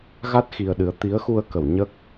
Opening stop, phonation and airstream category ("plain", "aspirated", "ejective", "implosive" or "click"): plain